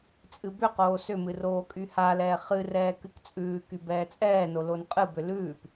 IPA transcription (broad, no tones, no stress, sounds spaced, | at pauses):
t͡sʼ ɨ b ʏ q oː s ʏ m ɨ r oː kʼ y h a l ɛː χ ɨ r ɛː k ɨ k t͡sʼ ʉː k y b ɛː t͡sʼ ɛː n o l o n qʼ ɨ b ʏ l ʉː p